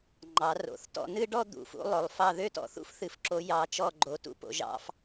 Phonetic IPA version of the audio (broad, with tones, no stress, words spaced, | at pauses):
ŋ͡ǃɑ˨˦ro̰˨˦θtɔ̰˥˧ nɨ˥˧ɖɔ˥˧ d̪ṵ˨˦fṵ˨˦ lˠo˨˦lˠfɑ˥˧ ðø˥˧tɔ̰˨˦ θṵ˥˧fθɨ˨˦fǁo˨˦ jɑ˨˦ t͡ʃɔ˥˧ɡ͡ǃo˨˦ tṵ˥˧po̰˨˦ʒɑ̰˥˧f